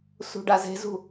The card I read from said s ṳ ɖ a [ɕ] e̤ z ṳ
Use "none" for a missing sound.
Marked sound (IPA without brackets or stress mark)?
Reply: z